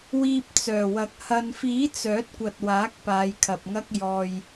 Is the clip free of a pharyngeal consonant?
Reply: yes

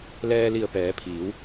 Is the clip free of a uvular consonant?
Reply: yes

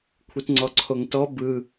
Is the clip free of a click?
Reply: no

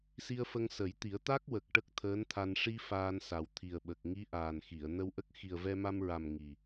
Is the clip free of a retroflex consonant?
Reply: no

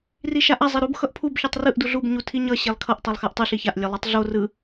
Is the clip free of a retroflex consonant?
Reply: yes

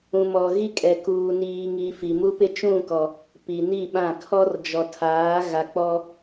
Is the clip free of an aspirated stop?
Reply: no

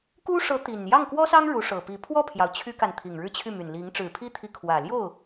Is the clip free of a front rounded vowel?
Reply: no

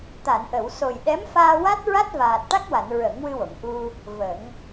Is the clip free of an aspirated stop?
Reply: yes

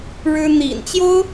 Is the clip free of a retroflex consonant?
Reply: no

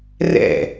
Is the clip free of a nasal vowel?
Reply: yes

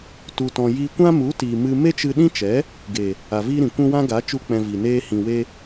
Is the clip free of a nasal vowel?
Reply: no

